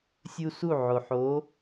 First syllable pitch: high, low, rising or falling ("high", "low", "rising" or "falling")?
high